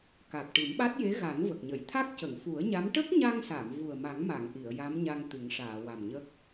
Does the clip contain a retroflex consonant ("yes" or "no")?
yes